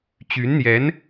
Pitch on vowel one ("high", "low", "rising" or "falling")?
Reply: rising